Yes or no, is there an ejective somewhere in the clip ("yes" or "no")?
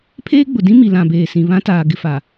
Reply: no